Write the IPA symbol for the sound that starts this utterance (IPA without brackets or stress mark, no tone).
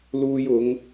l